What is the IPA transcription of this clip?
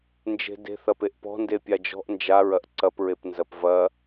n d͡ʒ e̤ d e̤ θ ɐ p e ʔ p ɔ̤ n d e pʲ a d͡ʒ ɔ̤ ʔ n d͡ʒ a ɹ ɐ ʔ ǀ ɐ p ɹ e p n z ɐ p v ɐ

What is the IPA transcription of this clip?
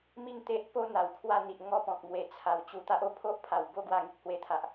m i˥˧ ŋ t̪ e˦ ʔ p o˦ n̪ a˨˩ w kʰ w a˥˧ n̪ i˨ ʔ ŋ ɔ˥˧ p ɔ̃˨ k̚ m w e˨˩ t͡sʰ a˨˩ w t͡ɕ u˧ t̪ a˦ ʔ o˧ pʰ o˦ ʔ pʰ a˨˩ w b o˦ ɡ w a˧ ŋ i˨ k̚ h w e˧ t̪ʰ a˨ ʔ

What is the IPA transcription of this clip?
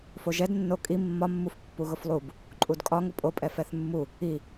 f o ʒ ɛ d nː o kʼ i mː ɒ mː u f pː u ɣ ʊ f lˠ u b | ǃʼ u d kʼ ɒ ŋ ʊ pʼ o pʼ ɛ f ɛ θ mː u | i

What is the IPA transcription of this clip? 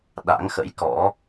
ɗ a̰˧˥ ŋ x ə̰˧˥ j k ɔ̰˧˥

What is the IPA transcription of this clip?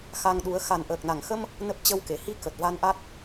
x a˧ ŋ ɗ u˨˦ ə̯ x a˨˩ n ʔ əː˨˩ k̚ n a˧˩ ŋ x ə˧ m | n ə˦˥ p̚ t͡ɕ ə˧ w k e˧˩ h i˧ k ə˨˩ t̚ v a˧ n ʔ a˦˥ t̚

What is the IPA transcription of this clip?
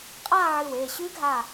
qʼ aː˥˧ ʕ ɨ˧˩ w eː˧˩ ɕ ʉ˦˥ ɡʱ a˧˩

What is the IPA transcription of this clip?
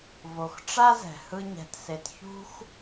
v o˨ x ʈ͡ʂ a˦ z ɛ̤˨ h ɯ˦ ɲ ɛ̤˧ t s e˧ t ç ṳ˦ x

